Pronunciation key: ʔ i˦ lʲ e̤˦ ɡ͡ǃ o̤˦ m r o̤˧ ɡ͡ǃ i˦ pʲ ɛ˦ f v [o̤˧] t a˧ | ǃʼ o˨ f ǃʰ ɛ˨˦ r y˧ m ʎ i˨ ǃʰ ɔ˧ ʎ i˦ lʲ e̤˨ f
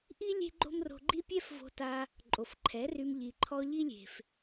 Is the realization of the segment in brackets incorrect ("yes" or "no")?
no